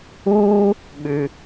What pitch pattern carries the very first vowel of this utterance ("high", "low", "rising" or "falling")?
high